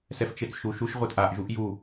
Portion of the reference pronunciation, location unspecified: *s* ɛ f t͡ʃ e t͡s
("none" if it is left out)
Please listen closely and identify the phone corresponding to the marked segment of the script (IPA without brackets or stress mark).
s